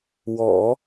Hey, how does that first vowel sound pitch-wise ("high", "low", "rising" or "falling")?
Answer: low